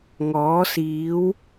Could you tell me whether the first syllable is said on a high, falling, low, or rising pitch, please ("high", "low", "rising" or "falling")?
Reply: rising